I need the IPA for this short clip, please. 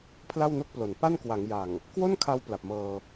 pʰ l a˥˩ w n o˥˩ k̚ p l o˩˦ n p a˥˩ n k w a˩˦ ŋ j a˨˩ ŋ | k w o˥˩ n kʰ a˧ w p l a˨˩ p̚ m ɤː˧

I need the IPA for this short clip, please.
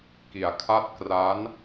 k i˩˦ a̯ kʰ a˥˩ t̚ k r a˦˥ n

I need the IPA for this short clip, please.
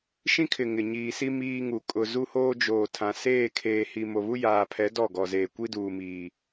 ʃ ĩ˦ kʰ ɪ˨ ŋ ɪ˨ ɲ iː˨ s i˦ m iː˦ ŋ u˨ kʼ ʊ˨ z u˦ h oː˦ d͡ʒ oː˨ tʰ ã˨ s eː˦˨ kʰ eː˨ h i˨ m o˨ β u˦ j aː˨ pʰ ɛ˨˦ d ɔ˦˨ ɡ ɔ˨ z eː˨ kʷ i˦ d uː˨ m iː˨

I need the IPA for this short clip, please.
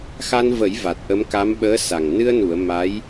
x a˧ n v ə˨˩˦ j v a˨˩ t̚ ʔ ə˧˥ m k a˧˥ m ɓ əː˧˥ s a˨˩ ŋ n ɨ˧ ə̯ n u˨˩˨ ə̯ m a˧˥ j

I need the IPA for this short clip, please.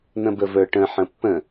n̪ ə̃ b ə v ə˞ ʈ ə̃ ħ ə̃ pː ə̃

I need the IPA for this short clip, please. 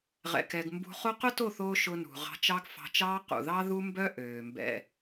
ʁ ɛ̰˧ k ɛ˧ ɡ m b ṳ˧ χ o˦ q ʊ˦ t o˦˨ θ oː˧ ʃ ʊ˧ n ṳ˨ ʁ ɑ̤˧ t͡ʃ ɑ˦ ɡ f ɑ̤˧ t͡ʃ ɑː˦ q ṵ˨ ð ɑ˦ ð u˦ m b œ˦ ʔ øː˨ m b ɛ̰˧

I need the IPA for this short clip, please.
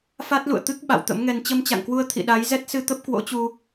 f a˦˥ t̚ l ṵ˧˨ ə̯ t̪ ɨ˦˥ k̚ ɓ a̰˧˨ w t̪ ə̰˧˥ m ŋ ɛ˧ n t͡ɕ ə˧ m t͡ɕ a̰˧˨ ŋ k w u˧ ə̯ t̪ʰ ḭ˧˨ ɗ a˨˦ j z ɛ˦˥ t̚ s ɨ˧ t̪ ə˦˥ p̚ k w o̰˧˥ t͡ɕ u˧

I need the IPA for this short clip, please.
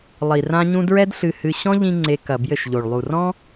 lˠ i˨ r ã˦ ɲ ũ˦ d ɹ ɛ˦ d ɬ ɨ˧ h ɨ˧ ɕ ɔ̃˦ ʎ ĩ˦ ŋ͡ǀ e˧ k ɐ˨ b j ɘ˦˨ ʃ ʎ o˨ ɭ lˠ u˨ r ɔ̃˦

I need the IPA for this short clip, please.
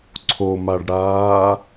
ǀʰ o m a ɖ ɽ aː

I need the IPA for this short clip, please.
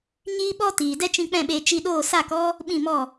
ɲ iː˦ ɓ ɔ˦ t iː˨ d ɛ˦ t͡ʃ ĩ˧ k͡p ɛ̃˦˨ ɓ eː˧ t͡ʃ i˧ ɗ oː˦˨ s a˦˨ k ɔ˦ | ɓ ĩ˦˨ m ɔ˦˨

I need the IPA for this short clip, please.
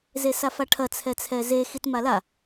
z e s a f a ʈʰ ɐ t͡sʰ ɛ t͡sʰ ɛ z e x i t m a l a

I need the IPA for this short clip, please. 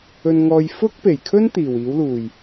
ɵ˧ n ŋ ɔː˧ j f ʊ˥ k̚ p e˨˩ j kʰ ɵ˥ n t̪ iː˨˩ w iː˨˥ w l uː˨˩ j

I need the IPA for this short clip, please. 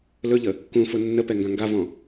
l ɵ ʎ ə | k ũ f ʊ nː ə p ɛ ŋ ɡ ã ŋ ɡ a v ɔ̃

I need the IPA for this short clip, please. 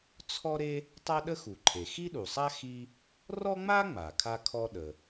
t͡sʰ ɔ˥ ɾ e˥ | tˤ a˥ ɗ ə˥ x u˩ ǃʰ e˩ x i˥ ɗ u˩ sˤ a˥ x i˥ | r ɔ˥ ŋ͡m a˥ ŋ͡m a˩ kʰ a˥ kʰ ɔ˥ ɗ ə˩

